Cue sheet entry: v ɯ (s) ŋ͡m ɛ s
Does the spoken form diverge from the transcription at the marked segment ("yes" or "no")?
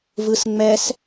no